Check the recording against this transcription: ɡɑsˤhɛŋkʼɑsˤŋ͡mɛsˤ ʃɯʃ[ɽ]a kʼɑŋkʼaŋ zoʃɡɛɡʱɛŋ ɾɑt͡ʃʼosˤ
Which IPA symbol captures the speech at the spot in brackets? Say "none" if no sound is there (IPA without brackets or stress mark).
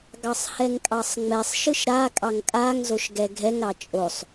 ɾ